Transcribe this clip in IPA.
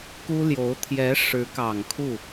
k u˥ l j o˧˥ ʊ̯ t̪ʰ j ɛ˧˥ ʂ ɻ̩˧˥ k ɑ˨˩ ŋ kʰ u˥˩

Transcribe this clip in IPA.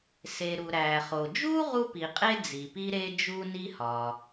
s e˩ ɾ u˩ ɾ æ˩ χ o˩ d͡ʒ u˥ ʁ u˥ p i˩ qʼ e˥ d͡z i˩ p i˥ ɾ e˥ d͡ʒ u˥ n i˥ h ɒ˩

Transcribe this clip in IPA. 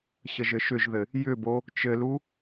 ɕ ə ʒ ɘ ʃ ʏ ʒ ð ɘ | j ʏ b o | t͡ʃ ɘ l u

